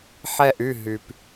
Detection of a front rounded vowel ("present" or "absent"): present